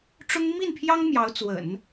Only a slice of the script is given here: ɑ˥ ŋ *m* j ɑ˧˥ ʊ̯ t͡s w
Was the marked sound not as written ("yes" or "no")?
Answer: no